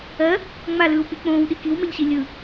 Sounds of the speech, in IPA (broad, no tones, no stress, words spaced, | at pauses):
ɜ | ŋ͡malɯːwk͡pi k͡põːwɗi kiwmɛʎɕi lʲɯ